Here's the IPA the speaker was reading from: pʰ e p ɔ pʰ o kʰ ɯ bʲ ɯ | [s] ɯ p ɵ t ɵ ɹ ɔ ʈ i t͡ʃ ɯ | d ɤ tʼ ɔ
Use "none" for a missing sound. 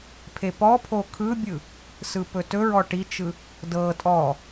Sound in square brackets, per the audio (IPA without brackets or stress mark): s